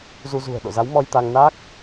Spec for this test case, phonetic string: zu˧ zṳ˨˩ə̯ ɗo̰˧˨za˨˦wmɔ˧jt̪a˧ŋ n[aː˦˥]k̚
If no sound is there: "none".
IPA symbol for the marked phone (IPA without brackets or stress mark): aː˦˥